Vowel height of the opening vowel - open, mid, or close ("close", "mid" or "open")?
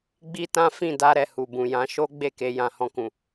close